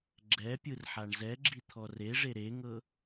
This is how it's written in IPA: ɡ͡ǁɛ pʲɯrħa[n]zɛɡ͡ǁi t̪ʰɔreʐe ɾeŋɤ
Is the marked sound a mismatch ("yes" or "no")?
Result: yes